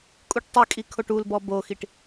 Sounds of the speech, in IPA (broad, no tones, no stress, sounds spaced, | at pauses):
kʼ u ʈ tˤ y kʼ i kʰ o ʈ u l b ɔ b o x i ʈ